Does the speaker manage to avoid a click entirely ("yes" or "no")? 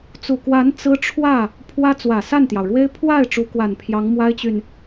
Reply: yes